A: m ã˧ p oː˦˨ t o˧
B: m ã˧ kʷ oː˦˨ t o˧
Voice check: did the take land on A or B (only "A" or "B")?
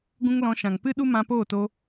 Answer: A